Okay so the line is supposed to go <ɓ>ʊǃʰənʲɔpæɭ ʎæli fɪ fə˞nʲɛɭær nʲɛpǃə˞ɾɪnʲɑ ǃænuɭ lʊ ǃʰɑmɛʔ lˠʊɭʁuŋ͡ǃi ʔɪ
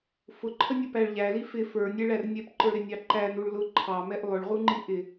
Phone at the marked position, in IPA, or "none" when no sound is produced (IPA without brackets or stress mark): f